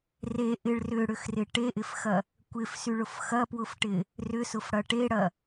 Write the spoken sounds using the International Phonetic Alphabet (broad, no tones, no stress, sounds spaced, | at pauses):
r e ʔ ɪ ɭ r ʏ ɽ ʏ x r ɪ ʈ e ʔ ɪ f x ɐ | kʷ ɪ f s y ɭ ʊ f x ɐ p w ʊ f ʈ ɪ | r ʏ s ʊ f ɽ ɐ ʈ e ɽ ɐ